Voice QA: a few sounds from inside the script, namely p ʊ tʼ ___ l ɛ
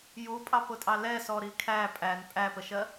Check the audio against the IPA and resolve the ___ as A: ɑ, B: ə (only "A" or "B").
A